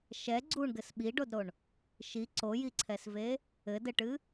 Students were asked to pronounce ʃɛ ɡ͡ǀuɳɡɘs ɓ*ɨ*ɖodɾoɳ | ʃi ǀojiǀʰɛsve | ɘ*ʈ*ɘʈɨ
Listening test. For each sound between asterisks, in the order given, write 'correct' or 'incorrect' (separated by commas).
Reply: incorrect, incorrect